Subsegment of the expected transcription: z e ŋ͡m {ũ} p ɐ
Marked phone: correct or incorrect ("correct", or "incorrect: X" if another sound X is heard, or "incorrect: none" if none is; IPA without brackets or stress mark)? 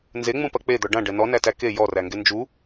correct